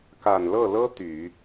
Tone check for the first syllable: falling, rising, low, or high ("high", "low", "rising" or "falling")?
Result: low